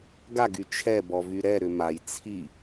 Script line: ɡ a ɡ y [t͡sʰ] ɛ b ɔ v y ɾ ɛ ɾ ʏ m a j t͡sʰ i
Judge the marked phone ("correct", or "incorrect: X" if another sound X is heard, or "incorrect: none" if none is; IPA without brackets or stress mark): incorrect: t͡ʃʰ